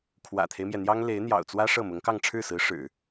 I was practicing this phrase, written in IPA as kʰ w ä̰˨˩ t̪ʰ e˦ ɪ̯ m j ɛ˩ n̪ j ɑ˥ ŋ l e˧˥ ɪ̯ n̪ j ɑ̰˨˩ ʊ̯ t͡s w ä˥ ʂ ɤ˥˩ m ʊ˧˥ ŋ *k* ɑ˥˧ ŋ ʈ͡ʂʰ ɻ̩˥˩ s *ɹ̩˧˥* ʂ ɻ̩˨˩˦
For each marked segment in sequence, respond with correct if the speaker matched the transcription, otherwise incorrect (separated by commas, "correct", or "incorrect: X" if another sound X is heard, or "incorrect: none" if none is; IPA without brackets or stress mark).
correct, correct